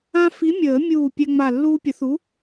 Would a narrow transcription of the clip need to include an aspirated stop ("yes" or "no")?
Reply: no